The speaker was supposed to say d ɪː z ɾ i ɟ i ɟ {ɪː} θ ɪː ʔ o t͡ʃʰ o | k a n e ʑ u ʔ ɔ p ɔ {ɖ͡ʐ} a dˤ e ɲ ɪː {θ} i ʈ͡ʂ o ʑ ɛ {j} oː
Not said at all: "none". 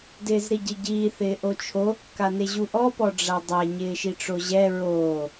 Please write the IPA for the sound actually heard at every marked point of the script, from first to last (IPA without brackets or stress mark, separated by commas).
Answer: iː, ɖ͡ʐ, ʃ, ɹ